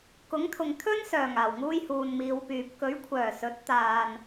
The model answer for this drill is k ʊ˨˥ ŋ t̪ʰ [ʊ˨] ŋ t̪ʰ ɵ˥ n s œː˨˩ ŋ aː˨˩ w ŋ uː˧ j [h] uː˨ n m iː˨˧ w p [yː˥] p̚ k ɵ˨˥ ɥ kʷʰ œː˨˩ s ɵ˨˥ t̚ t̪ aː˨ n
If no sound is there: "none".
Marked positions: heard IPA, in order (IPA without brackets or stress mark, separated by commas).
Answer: ʊ˨, h, yː˨